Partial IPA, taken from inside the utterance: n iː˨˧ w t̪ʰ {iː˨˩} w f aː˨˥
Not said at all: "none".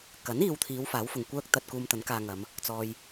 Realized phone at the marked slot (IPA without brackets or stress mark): iː˨˧